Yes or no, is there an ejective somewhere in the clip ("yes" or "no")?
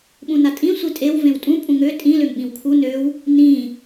yes